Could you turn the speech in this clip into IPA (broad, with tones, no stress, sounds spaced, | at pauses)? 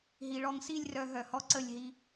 ɦ i˨ ɭ ɔ˧ ŋ s i˦˨ lʲ r œ˨ ɦ œ˨ h ɔ˦ ǀ ə˦˨ lʲ ɦ i˧